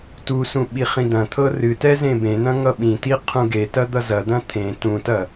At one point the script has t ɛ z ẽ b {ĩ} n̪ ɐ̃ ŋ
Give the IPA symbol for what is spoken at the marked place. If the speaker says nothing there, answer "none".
ẽ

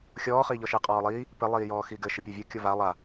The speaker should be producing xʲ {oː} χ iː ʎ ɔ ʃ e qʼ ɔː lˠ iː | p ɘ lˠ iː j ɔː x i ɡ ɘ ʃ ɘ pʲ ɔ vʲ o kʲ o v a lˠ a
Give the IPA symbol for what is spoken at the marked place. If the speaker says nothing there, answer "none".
ɔː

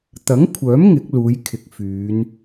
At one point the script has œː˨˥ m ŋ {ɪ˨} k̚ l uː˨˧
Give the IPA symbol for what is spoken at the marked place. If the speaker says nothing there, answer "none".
ɪ˨˥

